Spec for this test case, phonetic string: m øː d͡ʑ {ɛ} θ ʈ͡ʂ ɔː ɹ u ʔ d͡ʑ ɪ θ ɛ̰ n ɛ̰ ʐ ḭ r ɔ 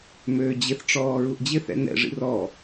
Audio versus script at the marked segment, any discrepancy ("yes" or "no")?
yes